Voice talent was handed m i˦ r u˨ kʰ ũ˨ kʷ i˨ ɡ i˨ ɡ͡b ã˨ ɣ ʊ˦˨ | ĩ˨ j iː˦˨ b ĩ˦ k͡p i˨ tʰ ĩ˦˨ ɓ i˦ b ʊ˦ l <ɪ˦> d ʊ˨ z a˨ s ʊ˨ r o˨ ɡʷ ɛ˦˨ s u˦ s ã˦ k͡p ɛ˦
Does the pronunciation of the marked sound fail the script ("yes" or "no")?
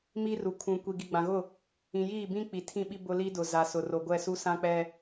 yes